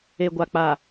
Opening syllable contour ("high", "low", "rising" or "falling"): low